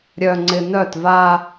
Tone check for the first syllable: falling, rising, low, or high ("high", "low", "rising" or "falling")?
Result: low